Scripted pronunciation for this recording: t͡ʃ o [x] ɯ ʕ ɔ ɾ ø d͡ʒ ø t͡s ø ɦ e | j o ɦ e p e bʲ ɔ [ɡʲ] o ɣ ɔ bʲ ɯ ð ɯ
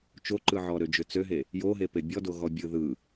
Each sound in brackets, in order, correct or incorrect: incorrect: ǃ, incorrect: d

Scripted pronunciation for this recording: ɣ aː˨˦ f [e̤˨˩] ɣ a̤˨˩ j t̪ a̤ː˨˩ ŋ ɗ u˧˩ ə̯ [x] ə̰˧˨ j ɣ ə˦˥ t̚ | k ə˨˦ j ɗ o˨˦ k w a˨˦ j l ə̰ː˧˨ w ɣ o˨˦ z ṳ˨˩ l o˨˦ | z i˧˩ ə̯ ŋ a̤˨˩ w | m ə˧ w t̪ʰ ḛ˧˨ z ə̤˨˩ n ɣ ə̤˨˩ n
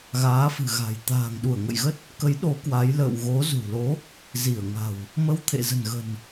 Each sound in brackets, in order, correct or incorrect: incorrect: ɨ̤˨˩, incorrect: ŋ

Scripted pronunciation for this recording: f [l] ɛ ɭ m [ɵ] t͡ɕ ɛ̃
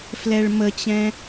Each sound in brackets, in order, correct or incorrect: correct, incorrect: ə

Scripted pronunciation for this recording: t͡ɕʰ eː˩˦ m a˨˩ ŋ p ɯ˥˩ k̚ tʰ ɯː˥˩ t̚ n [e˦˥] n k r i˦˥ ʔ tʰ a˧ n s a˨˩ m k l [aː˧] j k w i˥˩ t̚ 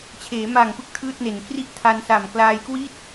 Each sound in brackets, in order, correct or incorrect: incorrect: e˨˩, correct

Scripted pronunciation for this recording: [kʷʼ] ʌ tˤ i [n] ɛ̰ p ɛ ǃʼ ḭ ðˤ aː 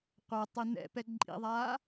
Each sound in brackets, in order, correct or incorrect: incorrect: qʷ, correct

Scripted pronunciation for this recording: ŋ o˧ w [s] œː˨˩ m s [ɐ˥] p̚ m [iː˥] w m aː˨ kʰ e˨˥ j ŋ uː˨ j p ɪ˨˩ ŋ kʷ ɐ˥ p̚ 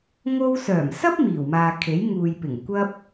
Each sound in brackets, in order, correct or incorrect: correct, correct, incorrect: iː˨˩

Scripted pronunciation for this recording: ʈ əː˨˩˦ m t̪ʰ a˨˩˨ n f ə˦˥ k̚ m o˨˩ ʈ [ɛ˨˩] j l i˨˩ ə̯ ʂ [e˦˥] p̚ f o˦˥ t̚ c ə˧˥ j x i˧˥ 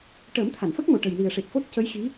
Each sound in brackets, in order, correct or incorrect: incorrect: ə˨˩, incorrect: e˨˩

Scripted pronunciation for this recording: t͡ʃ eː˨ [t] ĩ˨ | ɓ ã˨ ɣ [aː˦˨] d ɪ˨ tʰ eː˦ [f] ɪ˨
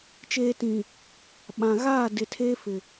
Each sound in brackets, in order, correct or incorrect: correct, correct, correct

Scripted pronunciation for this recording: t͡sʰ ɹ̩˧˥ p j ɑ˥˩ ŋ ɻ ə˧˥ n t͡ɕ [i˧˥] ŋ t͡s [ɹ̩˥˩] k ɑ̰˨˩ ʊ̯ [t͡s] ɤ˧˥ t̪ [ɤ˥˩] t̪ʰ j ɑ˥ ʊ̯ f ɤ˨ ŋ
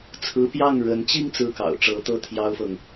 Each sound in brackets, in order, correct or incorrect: incorrect: i˥˧, correct, incorrect: ʈ͡ʂ, correct

